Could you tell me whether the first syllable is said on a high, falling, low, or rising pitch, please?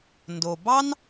low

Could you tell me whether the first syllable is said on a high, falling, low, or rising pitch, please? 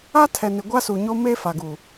high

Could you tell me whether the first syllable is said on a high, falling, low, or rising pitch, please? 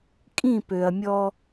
falling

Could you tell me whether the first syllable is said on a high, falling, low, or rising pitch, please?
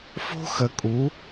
high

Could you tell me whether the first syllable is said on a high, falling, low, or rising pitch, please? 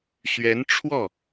rising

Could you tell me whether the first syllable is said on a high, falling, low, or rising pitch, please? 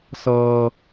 low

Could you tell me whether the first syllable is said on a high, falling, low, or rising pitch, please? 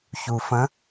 low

